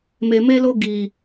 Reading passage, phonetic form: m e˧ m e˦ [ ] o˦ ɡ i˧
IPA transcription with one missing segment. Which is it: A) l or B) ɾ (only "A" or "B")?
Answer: A